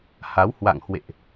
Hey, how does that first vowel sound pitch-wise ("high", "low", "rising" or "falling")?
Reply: rising